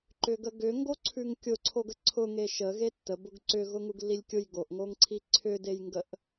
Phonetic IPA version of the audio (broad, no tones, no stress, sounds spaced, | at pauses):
ǃ ʏ ɡ ə ɡ ʏ ŋ ɡ o ǀʰ ʉ ŋ kʲ ʊ ǀʰ o ɡ ə ǀʰ ʊ ŋ e ʃ ə ɣ e tː ə b ʊ ɡ ǀ ʏ ɣ ʊ ŋ u ɡ lː i lʲ kʲ ʊ j ɡ o ʔ ŋ o ŋ ǀʰ i ǀʰ ʏ d e j ŋ ɡ ə ʔ